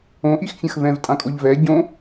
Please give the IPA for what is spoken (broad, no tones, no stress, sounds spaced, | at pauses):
õ ʔ i x fʲ ɐ̃ x v ɛ̃ v tʼ ã kʼ o ʎ v ɛ ɟ õ